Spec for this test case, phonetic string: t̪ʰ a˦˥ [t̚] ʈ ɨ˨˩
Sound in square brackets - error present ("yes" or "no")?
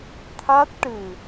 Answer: no